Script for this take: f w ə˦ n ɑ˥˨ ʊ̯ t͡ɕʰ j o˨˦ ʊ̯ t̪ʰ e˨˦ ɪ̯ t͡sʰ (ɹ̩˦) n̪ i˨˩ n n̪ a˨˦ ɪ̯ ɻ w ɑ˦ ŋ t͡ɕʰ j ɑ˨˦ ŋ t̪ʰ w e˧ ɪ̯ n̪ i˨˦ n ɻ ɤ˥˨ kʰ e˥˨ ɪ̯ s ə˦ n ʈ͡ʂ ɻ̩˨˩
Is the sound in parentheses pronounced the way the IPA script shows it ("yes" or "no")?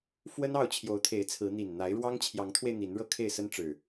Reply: no